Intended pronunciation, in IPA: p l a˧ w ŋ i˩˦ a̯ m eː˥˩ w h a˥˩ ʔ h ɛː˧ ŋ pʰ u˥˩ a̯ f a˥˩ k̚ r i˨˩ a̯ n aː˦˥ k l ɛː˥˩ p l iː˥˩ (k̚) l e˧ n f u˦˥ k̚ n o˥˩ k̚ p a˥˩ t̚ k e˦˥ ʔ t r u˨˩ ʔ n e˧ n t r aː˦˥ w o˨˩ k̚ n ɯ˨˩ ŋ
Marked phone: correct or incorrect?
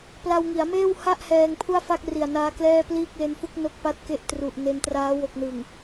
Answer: correct